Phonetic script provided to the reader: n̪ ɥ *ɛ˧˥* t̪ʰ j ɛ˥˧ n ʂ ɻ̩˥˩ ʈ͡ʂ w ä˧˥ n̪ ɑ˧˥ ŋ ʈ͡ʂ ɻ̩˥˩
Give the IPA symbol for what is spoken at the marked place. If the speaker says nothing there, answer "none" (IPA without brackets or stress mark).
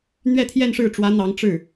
ɛ˥˧